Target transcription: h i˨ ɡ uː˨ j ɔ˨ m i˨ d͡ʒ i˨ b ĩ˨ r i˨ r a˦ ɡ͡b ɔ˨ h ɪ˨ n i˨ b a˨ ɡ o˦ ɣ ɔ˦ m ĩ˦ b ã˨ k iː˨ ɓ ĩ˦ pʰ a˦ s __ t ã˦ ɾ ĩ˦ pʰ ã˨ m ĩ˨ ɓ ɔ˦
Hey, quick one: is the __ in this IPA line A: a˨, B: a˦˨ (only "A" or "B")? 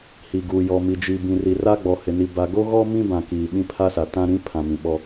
A